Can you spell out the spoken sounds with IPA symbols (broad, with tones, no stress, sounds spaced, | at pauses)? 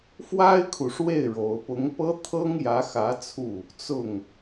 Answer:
f w a˥ ɪ̯ kʰ u˨ ʂ w e˥˩ ɪ̯ ɻ o˧˥ ʊ̯ p ʊ˧˥ ŋ p ɤ˥ t̪ʰ ɤ˥ ŋ j ä˧˥ x ä˧˥ t͡sʰ u˥˩ | t͡s ʊ˥˩ ŋ